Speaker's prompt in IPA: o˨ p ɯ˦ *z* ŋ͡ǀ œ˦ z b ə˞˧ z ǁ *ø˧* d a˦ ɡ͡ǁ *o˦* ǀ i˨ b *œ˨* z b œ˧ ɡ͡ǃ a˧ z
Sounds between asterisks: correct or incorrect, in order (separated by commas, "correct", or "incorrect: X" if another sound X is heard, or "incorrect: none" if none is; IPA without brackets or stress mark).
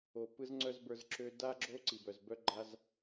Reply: correct, correct, correct, correct